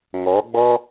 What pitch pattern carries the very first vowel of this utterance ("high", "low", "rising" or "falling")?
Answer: rising